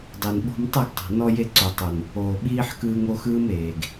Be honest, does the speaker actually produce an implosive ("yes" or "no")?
yes